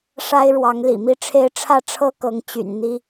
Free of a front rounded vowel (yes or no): no